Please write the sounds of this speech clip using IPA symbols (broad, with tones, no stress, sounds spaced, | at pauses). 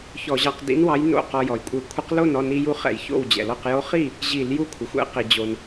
ç ɔ˧˩˧ ʑ ɑ˧ q d ḭ˧˥ n w ɑ˧˥ j n o̰˥˩ q ɔ˧ j ɔ˩ j kʷʼ ɘ˧˩˧ kʷʰ ə˧˥ q l o˥˩ n ɔ˥˩ n i˧ j u˧˥ χ ɛ̰˧˩˧ j ç o̰˥˩ w d͡ʑ ɛ̰˩ l ɔ˥˩ q j o˧˥ χ i˥˩ | ʑ i˧˩˧ l j u˧˥ kʷʰ ə˩ xʷ ɛ̰˧˥ q i˩ d͡ʑ o˩ n